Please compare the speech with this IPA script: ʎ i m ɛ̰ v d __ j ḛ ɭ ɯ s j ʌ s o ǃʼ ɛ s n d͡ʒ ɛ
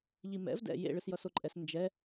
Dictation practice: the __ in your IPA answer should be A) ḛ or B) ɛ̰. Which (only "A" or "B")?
B